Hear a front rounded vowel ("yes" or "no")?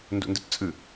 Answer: no